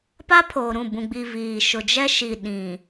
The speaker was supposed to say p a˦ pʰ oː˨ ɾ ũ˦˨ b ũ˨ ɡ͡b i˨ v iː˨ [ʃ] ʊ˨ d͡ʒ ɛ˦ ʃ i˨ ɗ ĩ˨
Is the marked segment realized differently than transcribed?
no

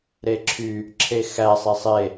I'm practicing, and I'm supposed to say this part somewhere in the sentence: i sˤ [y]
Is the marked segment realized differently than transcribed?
yes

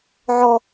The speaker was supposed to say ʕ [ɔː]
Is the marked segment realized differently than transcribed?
yes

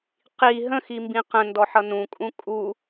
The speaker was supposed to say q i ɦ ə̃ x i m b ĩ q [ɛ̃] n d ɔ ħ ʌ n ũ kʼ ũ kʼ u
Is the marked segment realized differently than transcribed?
yes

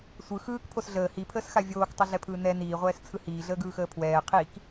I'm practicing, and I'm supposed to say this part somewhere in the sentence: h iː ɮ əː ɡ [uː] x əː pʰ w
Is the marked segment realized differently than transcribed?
yes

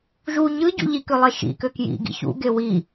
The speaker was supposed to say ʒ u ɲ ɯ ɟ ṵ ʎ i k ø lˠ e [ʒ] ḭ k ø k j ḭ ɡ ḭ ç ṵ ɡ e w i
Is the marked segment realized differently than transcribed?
yes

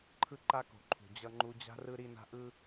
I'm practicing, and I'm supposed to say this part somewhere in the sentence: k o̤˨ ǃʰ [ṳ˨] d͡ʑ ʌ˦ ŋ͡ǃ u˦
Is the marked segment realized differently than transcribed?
no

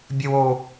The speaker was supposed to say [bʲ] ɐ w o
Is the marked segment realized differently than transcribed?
no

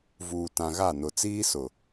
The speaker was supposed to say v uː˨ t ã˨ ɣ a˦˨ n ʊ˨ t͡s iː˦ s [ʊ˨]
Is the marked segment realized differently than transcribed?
no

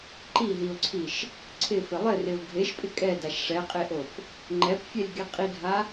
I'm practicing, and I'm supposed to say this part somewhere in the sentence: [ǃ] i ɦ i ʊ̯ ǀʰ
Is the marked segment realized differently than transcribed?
no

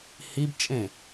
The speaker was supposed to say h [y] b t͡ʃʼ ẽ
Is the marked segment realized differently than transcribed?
yes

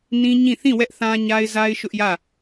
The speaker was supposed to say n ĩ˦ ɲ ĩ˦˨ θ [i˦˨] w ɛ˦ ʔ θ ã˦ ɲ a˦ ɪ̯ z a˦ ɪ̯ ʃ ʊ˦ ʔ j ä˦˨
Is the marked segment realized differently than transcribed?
yes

